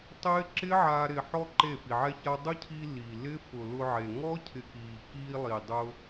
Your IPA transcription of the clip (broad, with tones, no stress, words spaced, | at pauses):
tˤɪː˦ ǁɪ˦ʕa˧ ɾɪ˨ħɔ˧ ǃe˦˨fi˨ʕɛ˦ça˦ dˤʊ˦cʰi˧ li˨ lɪ˦ fʊ˨ lʊ˧ʕe˨ ŋɔ˦ cʰɪ˧kiː˨ kiː˧lˠi˨dˤʊ˧